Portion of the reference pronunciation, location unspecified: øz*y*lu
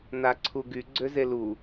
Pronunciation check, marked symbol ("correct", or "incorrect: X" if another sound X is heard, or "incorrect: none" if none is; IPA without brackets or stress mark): incorrect: e